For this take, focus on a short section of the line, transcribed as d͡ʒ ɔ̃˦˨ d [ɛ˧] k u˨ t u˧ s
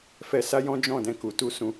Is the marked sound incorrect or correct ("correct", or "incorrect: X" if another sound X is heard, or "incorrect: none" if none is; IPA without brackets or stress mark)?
incorrect: ɛ̃˧